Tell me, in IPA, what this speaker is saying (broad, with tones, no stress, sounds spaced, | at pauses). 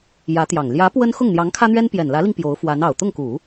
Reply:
j ä˧˥ t̪ j ɑ˨˩ ŋ l j ä˧˥ p w ə˥ n x ʊ˥˩ ŋ n̪ j ɑ˧˥ ŋ kʰ ä˥ n̪ ɥ ɛ˥ n p j ɛ˨˩ n l ä˧˥ l i˧ ŋ p j o˧˥ ʊ̯ f w a˧˥ n ɑ˨˩ ʊ̯ t̪ ʊ˥˩ ŋ k u˨˩˦